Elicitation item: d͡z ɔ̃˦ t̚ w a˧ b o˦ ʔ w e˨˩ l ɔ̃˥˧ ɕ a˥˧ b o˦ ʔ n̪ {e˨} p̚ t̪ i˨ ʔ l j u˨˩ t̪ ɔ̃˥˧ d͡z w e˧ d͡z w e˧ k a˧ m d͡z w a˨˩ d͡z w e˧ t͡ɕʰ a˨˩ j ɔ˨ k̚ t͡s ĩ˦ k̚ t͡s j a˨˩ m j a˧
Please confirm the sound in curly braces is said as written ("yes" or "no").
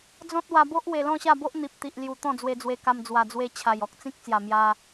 no